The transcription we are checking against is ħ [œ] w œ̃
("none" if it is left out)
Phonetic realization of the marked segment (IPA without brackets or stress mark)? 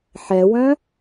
ɛ